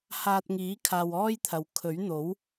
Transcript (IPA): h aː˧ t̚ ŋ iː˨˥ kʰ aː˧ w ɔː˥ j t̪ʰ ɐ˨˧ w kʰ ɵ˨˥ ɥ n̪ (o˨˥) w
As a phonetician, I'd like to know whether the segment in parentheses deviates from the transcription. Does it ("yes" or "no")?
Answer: no